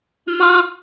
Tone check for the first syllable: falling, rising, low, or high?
high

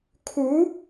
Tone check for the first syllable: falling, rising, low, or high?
rising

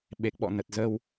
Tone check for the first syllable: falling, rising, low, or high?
low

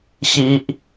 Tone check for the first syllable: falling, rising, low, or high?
high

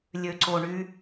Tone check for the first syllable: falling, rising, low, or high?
low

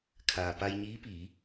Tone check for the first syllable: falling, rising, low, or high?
low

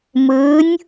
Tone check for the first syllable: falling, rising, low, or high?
rising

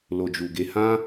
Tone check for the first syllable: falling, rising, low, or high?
low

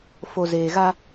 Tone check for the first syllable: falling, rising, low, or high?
low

